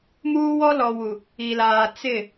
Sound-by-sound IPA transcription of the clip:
m uː˦ w ɔ˦ l ɔ˨ w u˨ | i˨ l aː˨ t͡s ɪ˦˨

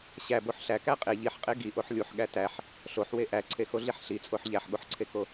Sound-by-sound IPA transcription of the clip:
ɕ æ b o ħ ɬ æ k æ qʼ e ʎ i ħ qʼ e ɡ i ʔ o ħ lʲ u ħ ɠ æ t æ ħ | ɬ o ħ w e ʔ æ ǀʰ e x o ɮ i ħ ɬ i t͡sʼ o ħ ʎ æ ħ ɠ o ħ ǀʰ e k o

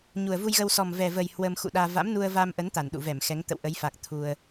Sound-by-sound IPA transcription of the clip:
ɲ u˨˩ ə̯ v u˧ j ɣ ə˧ w s ɔ˨˩ m v ɛ˨˩ v ə˨˩ j h w ə˧ m x ṵ˧˨ ɗ aː˧ v a̰˧˥ m n u˧ ə̯ v a˧ m ʔ ə˨˦ n t̪ a˧˩ n ɗ ṵ˧˨ v ɛ˧˩ m x ɛ˨˦ ŋ t̪ ə̰˧˨ w ʔ ə˨˦ j f a˨˩ k̚ t̪ʰ u˧ ə̯

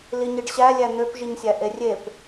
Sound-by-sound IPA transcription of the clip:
l i ɲ i ɖ ɕ æ lʲ æ n̪ ø p ʒ i ɲ sʲ æ ʔ e rʲ e p

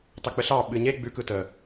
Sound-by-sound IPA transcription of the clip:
t ɑ k͡p ə ɬ ɑ ɓ ɨ ɲ e ɡ͡b ʉ k ɯ t ə

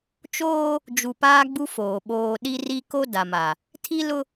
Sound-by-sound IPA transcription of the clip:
t͡ʃ oː˦ | d͡ʒ u˨ p aː˦ ɡ͡b u˦ f oː˨ ɓ oː˨ ɗ i˦ r i˦ k o˦ d a˨ m a˨ | tʰ i˦ l ʊ˦

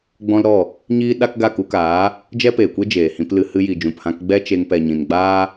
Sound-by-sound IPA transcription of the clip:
ɡ͡b ɔ̃˦ l ɾ ɔ˦˨ | ɲ iː˦ ɗ a˦ k ɡ a˦˨ k u˧ k aː˨˦ | d͡ʒ ɛ˦ p eː˨ kʷ e˦ d͡ʒ eː˨ h ĩ˧ p l ɨ˧ h ɨ˧ j i˨ d͡ʒ ũ˨ p h ã˧ k ɡ͡b ɛ˦ t͡ʃ e˧ ŋ p ɛ˨ ɲ ĩ˨ n ɡ͡b aː˦

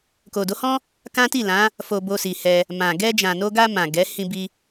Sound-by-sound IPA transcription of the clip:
k o˨ d o˨˦ h ɔ̃˦ | k ã˦ t i˦˨ l ã˨˦ | f o˧ b o˧ s i˨ h ɛ˧ | m ã˨ ɡ ɛ˧ d͡ʒ ã˨ n o˧ ɡ a˧ m ã˨ ɡ ɛ˨˦ h ĩ˧ b i˧

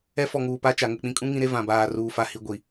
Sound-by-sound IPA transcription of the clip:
ɛ˦ f ɔ˨ ŋ uː˨ p a˦ t͡ʃ a˨ ŋ ʊ˨ k͡p ĩ˨ kʼ ũ˦ ŋ ĩ˦ ɾ e˦ v ã˨ b aː˨ r uː˨ f a˨ h i˨ ɡʷ i˨

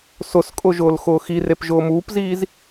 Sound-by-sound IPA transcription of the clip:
s ʊ s kʼ ʊ ʒ ʊː l x ʊː x i r e p ʒ ʊː m uː p z iː z

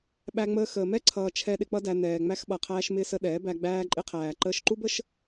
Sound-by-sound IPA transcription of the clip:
ɓ æ˧ ŋ͡m əː˧ x əː˨ m ɛ˦ ǀʰ ʌː˧ t͡ʃʰ ɛ˧ ɗ ɪ˧ k͡p ʌ˦ d æ˧ n ɛː˨ ŋ͡m æ˧ x ɓ ʌ˨ qʰ æː˧ ʃ m ɪː˧ s ə˧ ɗ ɛː˨˦ b æ˧ ɡ͡b æː˧ ǃʼ ɪ˧ qʰ æː˨ ǃ əː˧ ʃ ǃ u˦ b ə˦ ʃ

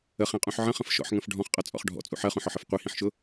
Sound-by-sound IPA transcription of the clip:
ə χ ĩ qʼ ũ ħ ʕ ə̃ χ ə̃ f ʃ ɔ̰ ħ ŋ ə̃ f ɖʱ ɔ̃ χ qʼ ʌ t͡sʼ ɔ̰ χ ɖʱ ɔ̰ t͡sʼ ṵ ħ ɜ χ ũ ħ ɔ ħ ə f qʷ i h ĩ ħ ʃ ʊ

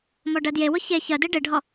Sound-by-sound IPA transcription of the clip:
m ɔ ɖ ɜ d j e w ʊ ç e ç ɜ d e ɖ e ɖʱ ɔ

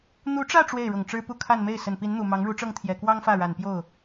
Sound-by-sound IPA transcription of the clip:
n̪ u˧˥ ʈ͡ʂ ä˥˧ ʈ͡ʂ w e˥˩ ɪ̯ ɻ ʊ˨˩ ŋ ʈ͡ʂ ɻ̩˥ p u˥˧ kʰ a˥˧ n m e˥˩ ɪ̯ s ə˨˩ n p i˧˥ n n̪ u˨˩ m ɑ˧˥ ŋ ɻ u˧˥ ʈ͡ʂ ɤ˥˩ ŋ t̪ʰ j ɛ˨˩ k w ɑ˥ ŋ f ä˥˩ ɻ a˨˩ n p j o˥˩ ʊ̯

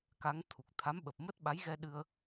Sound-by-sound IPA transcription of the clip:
k a˨˦ ŋ t̪ʰ u˨˩ k̚ t̪ʰ a˨˦ m ɓ ə˨˩ p̚ m ə˦˥ t̚ ɓ a˨˦ j ɣ ɛ˧ ɗ ɨ˧ ə̯

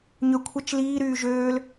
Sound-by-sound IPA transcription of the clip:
ɲ ø kʷʰ ɐ t͡ʃ l iː ɾ yː ʒ øː l

